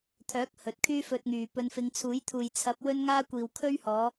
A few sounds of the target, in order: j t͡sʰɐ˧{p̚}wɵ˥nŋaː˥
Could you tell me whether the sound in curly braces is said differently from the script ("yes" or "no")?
no